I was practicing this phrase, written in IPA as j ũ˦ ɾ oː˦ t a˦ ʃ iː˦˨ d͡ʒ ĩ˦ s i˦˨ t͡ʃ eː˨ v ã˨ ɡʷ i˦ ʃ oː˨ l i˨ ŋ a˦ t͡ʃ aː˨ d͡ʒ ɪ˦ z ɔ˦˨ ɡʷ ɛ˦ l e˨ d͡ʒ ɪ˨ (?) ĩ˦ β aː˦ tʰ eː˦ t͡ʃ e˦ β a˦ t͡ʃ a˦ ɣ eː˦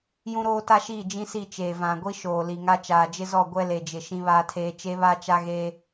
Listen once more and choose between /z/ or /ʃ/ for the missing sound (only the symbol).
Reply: ʃ